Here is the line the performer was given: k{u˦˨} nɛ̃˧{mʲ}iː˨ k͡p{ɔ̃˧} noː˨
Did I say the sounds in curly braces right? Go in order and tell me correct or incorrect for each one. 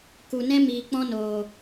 incorrect, incorrect, correct

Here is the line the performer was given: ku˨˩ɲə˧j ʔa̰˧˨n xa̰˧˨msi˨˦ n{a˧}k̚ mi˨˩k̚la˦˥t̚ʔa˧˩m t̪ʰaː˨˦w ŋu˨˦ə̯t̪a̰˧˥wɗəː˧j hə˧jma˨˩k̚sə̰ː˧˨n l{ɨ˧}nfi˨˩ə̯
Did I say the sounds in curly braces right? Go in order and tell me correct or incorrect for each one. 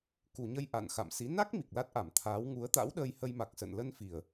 incorrect, incorrect

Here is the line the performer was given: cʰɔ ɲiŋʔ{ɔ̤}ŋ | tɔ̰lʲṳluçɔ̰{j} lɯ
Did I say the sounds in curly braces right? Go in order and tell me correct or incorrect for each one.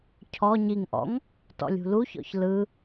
incorrect, incorrect

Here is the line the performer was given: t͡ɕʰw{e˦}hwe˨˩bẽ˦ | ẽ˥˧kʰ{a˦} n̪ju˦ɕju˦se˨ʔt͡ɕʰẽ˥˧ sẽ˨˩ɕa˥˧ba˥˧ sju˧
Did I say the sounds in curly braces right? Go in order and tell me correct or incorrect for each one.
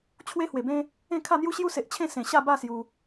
correct, incorrect

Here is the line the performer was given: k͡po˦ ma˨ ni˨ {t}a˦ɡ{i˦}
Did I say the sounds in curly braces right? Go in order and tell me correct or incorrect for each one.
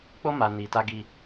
correct, correct

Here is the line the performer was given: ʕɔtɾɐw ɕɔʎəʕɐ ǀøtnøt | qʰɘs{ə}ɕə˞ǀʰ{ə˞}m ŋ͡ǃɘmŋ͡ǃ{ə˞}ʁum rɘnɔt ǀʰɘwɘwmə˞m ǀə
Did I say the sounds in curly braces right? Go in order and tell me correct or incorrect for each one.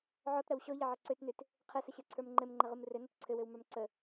correct, correct, incorrect

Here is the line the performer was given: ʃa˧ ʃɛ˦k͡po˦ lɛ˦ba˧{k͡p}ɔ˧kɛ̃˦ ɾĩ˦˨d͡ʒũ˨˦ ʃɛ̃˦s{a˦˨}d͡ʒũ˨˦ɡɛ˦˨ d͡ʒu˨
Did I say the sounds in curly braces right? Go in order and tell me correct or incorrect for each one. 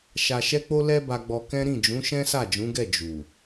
incorrect, correct

